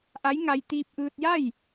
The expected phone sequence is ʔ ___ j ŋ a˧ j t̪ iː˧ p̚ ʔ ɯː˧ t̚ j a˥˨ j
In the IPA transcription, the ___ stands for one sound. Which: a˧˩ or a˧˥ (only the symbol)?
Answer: a˧˥